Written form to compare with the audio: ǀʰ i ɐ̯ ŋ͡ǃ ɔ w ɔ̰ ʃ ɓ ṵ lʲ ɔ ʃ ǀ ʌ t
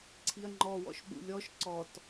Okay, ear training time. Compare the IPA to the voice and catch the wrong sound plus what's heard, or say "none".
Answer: ʌ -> ɔ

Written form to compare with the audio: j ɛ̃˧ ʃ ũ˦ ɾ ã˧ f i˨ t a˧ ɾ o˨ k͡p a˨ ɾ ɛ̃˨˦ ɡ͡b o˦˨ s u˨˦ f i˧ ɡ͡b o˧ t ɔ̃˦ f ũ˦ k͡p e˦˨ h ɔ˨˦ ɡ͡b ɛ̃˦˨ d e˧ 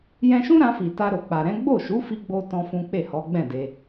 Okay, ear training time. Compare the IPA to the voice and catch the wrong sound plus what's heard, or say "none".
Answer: s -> ʃ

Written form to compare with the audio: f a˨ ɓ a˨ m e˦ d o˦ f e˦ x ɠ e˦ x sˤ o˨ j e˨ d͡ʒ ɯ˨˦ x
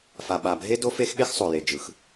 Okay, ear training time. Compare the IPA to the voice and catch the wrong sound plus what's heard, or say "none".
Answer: m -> bʱ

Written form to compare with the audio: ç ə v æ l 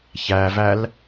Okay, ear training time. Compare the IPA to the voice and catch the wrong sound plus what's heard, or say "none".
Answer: ə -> æ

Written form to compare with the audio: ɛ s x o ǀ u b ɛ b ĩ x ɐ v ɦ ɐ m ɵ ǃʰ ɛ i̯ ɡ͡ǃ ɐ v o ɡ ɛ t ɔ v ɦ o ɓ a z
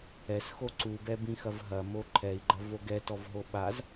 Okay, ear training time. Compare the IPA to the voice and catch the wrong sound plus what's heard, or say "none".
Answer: ɵ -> o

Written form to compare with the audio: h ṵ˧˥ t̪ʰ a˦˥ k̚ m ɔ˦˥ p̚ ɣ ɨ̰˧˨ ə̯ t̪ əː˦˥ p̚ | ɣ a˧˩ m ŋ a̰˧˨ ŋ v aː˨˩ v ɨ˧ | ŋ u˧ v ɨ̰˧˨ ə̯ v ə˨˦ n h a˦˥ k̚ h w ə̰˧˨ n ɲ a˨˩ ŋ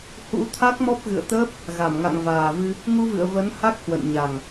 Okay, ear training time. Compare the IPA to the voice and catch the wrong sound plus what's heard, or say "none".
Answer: none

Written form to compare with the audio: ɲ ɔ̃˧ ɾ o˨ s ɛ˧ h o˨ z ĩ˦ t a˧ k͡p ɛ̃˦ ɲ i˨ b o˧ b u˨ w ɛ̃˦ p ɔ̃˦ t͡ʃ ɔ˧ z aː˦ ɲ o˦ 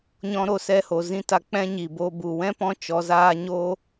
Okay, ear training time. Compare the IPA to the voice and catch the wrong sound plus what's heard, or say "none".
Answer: none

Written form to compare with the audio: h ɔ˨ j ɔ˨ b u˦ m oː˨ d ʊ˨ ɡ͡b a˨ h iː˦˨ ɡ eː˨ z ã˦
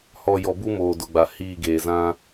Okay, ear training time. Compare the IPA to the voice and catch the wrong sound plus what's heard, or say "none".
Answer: none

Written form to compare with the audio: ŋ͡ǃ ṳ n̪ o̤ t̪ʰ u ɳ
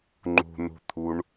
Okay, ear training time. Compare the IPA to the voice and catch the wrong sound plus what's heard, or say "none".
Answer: o̤ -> ṳ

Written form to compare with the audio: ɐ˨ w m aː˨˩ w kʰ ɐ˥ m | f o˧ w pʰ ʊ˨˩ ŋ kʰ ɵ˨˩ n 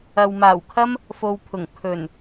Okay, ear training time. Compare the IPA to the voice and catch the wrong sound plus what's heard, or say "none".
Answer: none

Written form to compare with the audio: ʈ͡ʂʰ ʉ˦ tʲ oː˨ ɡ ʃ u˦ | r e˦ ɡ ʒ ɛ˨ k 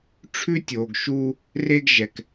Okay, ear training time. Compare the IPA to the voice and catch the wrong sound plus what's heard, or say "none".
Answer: none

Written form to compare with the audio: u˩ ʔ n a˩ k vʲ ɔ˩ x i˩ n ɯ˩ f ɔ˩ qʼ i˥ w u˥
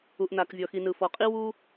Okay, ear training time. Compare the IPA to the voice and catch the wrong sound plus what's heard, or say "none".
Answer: none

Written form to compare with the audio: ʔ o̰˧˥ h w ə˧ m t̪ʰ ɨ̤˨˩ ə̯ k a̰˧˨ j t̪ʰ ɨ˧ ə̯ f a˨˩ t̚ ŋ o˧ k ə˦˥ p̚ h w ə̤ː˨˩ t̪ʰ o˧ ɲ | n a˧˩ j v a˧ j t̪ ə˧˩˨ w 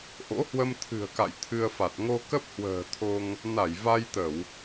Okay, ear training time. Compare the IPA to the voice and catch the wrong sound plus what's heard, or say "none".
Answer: ɲ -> ŋ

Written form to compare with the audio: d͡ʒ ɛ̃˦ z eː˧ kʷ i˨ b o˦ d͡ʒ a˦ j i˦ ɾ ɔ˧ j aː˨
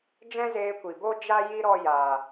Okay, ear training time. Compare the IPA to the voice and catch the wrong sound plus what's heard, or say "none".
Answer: none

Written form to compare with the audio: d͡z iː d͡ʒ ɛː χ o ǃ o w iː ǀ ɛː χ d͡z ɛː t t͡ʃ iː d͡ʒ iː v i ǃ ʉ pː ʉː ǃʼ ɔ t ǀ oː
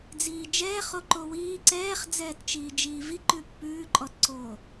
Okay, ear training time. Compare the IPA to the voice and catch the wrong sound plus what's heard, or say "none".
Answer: none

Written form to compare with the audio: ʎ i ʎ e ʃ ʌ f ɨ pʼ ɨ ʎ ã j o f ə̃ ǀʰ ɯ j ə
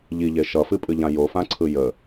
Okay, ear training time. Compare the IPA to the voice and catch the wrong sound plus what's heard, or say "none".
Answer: ə̃ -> ã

